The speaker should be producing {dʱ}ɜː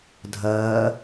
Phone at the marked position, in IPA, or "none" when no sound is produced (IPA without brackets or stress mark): dʱ